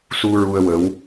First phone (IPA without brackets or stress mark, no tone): s